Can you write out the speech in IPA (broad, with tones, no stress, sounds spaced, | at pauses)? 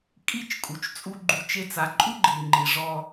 kʼ i˦˨ t͡ʃ kʼ u˨ t͡ʃ t͡sʼ u˦ ɡ͡ǃ u˧ t͡ʃ e˦ t͡s a˧ ǃʼ u˦ ɡ͡ǃ i˨ ŋ͡ǃ i˨ ʐ ɔ˧